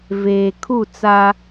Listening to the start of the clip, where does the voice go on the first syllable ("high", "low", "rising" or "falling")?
low